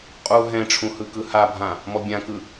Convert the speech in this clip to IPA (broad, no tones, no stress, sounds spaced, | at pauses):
qʼ u ɦ ɛ̃ ʈ͡ʂʰ ũ h ɯ k ɯ h a bʱ ã | m ɔ bʲ ã k ɯ